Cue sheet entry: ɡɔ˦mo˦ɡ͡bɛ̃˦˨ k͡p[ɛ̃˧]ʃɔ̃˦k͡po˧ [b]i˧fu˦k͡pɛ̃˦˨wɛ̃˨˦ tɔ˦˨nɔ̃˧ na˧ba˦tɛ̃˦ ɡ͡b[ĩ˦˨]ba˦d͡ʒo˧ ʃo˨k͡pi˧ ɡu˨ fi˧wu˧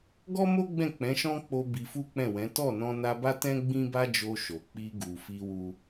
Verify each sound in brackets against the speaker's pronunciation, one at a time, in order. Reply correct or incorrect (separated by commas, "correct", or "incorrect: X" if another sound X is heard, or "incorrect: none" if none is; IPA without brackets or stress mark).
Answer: incorrect: ɛ̃˨˦, correct, incorrect: ĩ˦